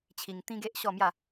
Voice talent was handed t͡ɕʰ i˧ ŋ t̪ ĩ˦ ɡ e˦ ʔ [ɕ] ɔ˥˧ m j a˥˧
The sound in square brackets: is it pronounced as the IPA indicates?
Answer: yes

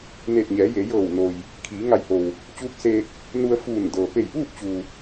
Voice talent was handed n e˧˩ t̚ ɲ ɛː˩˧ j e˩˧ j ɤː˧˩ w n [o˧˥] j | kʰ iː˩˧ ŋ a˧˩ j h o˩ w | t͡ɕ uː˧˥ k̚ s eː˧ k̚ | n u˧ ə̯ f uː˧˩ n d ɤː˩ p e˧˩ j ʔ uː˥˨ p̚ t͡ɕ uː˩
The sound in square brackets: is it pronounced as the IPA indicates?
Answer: no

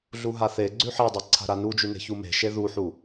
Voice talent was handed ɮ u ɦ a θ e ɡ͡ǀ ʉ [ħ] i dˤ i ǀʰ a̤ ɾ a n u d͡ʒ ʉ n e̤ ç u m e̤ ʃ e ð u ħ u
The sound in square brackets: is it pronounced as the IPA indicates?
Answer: yes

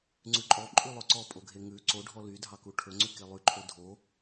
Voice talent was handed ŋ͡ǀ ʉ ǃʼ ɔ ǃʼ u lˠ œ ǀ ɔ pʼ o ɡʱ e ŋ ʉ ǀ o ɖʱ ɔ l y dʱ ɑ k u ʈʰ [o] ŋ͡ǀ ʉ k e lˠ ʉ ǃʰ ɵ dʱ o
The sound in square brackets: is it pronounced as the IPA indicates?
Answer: no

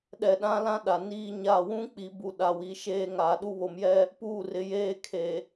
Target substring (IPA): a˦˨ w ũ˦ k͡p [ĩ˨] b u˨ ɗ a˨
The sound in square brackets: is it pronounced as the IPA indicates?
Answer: no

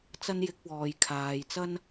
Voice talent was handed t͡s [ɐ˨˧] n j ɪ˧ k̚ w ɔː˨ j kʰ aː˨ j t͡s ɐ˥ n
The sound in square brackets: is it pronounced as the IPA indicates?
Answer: no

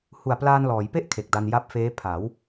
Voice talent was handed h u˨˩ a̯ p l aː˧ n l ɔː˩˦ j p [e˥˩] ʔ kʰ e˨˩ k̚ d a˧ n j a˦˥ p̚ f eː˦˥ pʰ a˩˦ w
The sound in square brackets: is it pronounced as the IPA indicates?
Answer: yes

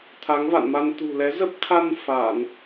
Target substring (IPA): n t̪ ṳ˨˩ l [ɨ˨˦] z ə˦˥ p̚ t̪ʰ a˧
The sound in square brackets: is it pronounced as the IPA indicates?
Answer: no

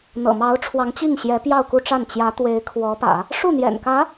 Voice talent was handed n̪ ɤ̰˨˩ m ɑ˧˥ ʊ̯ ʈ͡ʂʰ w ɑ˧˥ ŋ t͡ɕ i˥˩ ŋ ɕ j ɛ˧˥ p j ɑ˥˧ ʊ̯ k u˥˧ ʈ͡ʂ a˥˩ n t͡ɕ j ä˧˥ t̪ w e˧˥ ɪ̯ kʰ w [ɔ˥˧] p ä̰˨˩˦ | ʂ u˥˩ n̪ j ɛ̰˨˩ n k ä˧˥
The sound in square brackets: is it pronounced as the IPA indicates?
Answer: no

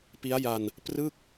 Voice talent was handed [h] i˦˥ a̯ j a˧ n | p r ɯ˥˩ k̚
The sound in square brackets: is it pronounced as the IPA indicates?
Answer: no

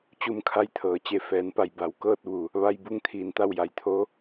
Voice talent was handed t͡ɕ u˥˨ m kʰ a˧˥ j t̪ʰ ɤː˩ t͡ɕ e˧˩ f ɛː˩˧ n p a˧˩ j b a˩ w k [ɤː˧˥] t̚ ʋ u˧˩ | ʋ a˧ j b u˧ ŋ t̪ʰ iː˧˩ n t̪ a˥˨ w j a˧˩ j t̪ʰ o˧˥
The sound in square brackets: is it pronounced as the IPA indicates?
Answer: no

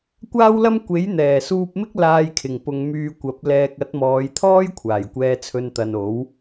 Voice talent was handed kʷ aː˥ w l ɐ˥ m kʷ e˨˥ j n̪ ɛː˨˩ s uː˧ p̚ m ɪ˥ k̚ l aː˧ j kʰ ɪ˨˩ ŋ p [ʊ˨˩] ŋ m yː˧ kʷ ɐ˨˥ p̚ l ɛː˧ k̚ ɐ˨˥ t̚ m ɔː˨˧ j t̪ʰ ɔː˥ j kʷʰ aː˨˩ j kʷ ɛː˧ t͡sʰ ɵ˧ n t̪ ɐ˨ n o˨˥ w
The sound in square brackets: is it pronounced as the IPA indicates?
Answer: no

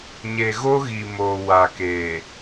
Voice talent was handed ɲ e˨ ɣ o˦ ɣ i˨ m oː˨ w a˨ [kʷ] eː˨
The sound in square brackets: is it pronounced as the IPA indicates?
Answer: no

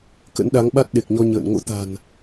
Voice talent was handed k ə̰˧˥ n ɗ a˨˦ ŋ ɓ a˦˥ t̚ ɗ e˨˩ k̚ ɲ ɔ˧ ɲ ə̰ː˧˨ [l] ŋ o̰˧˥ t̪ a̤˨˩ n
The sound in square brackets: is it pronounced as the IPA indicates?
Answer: no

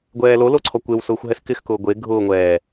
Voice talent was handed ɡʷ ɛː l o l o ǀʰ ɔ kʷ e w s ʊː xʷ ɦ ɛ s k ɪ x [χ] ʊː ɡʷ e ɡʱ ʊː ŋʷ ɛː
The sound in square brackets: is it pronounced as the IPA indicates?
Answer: no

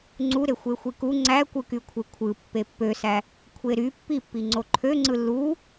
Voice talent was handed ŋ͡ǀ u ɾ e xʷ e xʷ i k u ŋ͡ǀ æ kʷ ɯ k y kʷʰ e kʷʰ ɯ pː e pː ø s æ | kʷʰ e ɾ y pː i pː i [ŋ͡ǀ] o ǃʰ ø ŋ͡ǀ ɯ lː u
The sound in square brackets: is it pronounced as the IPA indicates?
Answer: yes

